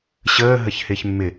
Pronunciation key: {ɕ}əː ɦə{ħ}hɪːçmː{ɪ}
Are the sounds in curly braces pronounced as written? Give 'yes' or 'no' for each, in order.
yes, no, yes

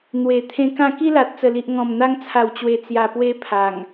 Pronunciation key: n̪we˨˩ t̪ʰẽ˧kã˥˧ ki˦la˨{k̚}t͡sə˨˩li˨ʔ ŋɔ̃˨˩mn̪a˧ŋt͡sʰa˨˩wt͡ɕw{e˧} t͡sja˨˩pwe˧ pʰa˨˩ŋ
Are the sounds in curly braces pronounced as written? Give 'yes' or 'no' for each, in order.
no, no

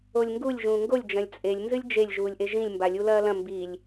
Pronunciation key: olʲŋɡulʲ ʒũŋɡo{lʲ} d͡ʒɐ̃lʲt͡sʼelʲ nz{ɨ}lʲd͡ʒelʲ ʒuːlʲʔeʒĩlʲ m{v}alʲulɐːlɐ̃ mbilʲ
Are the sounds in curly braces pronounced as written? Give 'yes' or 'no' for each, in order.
yes, yes, no

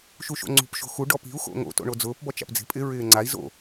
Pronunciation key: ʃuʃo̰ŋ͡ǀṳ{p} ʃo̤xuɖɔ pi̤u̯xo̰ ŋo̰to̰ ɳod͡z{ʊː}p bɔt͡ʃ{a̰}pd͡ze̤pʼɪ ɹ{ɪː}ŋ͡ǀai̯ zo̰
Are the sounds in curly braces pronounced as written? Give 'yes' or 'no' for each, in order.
yes, yes, yes, yes

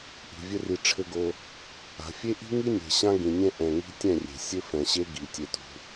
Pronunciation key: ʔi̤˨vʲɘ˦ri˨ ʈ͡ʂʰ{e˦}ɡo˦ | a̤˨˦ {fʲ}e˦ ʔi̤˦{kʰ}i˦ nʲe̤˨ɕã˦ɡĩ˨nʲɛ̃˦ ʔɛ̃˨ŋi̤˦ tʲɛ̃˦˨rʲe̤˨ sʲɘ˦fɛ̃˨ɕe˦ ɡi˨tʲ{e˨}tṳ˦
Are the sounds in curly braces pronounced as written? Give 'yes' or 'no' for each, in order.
no, yes, no, no

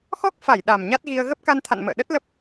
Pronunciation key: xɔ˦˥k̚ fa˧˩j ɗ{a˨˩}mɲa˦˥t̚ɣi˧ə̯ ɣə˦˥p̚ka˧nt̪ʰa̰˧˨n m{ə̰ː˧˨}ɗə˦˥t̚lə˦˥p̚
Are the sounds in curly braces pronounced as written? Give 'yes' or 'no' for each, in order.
yes, yes

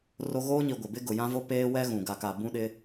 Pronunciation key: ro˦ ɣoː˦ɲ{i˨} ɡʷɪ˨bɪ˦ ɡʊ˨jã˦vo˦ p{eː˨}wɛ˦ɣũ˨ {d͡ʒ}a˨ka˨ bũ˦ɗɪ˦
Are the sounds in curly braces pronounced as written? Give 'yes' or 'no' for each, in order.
yes, no, no

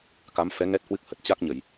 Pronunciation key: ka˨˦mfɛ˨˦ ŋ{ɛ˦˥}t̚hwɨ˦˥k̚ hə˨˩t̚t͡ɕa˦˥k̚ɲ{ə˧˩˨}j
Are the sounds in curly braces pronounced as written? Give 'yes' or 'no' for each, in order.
yes, yes

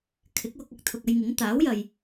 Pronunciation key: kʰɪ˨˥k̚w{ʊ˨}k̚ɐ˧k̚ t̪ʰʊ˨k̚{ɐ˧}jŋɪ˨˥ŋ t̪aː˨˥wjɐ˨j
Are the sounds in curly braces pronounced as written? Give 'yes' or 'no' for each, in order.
no, yes

